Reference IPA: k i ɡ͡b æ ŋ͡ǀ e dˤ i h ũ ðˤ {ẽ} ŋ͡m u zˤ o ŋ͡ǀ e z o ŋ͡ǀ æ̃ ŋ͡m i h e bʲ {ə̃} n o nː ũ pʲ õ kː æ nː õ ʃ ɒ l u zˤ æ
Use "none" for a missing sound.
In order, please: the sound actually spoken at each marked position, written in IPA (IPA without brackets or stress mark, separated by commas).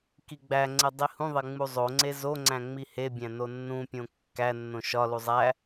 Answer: e, æ̃